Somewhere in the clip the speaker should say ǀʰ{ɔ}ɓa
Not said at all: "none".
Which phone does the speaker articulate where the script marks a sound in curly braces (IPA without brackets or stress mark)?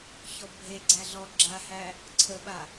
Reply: ə